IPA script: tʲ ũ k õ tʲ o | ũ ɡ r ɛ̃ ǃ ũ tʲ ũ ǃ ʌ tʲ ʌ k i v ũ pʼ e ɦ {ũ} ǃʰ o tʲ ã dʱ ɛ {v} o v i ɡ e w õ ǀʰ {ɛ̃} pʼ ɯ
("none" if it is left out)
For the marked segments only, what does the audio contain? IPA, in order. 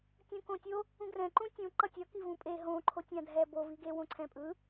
õ, b, ɛ̃

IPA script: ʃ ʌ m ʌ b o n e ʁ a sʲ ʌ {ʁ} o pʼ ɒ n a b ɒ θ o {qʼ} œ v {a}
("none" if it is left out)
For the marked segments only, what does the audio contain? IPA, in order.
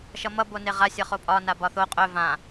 χ, qʼ, ã

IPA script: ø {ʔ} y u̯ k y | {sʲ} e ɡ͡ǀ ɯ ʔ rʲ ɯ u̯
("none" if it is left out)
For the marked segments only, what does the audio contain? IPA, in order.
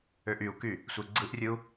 ʔ, sʷ

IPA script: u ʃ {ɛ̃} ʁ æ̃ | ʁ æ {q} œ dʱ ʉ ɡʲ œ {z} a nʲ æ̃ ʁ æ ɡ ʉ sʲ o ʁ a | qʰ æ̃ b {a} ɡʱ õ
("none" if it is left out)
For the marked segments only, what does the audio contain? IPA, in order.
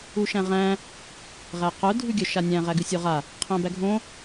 æ̃, q, ʃ, æ

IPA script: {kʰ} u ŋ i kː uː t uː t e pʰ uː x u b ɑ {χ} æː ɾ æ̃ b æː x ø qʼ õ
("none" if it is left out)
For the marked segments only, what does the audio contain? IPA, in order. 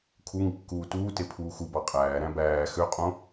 kʰ, qʼ

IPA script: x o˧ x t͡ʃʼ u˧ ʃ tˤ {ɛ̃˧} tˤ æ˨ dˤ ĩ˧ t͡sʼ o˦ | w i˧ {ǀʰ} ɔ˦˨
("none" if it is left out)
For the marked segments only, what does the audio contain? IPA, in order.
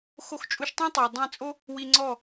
ɛ̃˦, ŋ͡ǀ

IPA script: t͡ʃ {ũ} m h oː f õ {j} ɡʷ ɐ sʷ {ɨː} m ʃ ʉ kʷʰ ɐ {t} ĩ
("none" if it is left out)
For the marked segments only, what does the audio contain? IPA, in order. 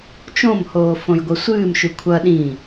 õ, j, ɨː, ɗ

